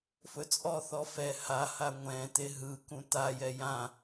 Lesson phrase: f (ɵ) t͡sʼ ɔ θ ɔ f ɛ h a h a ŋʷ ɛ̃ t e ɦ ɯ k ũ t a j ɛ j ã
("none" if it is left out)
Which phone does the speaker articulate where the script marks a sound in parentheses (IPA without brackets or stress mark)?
ɵ